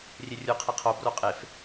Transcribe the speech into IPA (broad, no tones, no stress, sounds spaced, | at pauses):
rʲ e rʲ u qʰ i qʰ o b r o qʼ e f